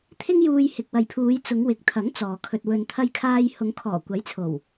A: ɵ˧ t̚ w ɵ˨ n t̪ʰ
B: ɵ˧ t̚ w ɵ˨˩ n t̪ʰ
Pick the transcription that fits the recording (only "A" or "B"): A